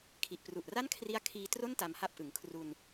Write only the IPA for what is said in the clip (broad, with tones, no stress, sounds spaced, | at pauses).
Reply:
kʰ i˨˩ ʔ p r u˨˩ ʔ r a˥˩ n kʰ r i˦˥ a̯ kʰ iː˧ t r o˥˩ n t a˧ m h a˥˩ p̚ ʔ ɯ˩˦ ŋ kʰ r u˧ n